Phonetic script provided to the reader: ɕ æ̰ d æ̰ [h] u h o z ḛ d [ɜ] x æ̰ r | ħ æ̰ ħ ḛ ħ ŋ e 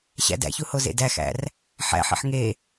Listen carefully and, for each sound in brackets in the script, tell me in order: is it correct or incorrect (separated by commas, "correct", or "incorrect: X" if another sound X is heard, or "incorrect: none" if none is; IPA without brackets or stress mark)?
incorrect: ç, incorrect: æ